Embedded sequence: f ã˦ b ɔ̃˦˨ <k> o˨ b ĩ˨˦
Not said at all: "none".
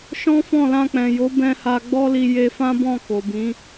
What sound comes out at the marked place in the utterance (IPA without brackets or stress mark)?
k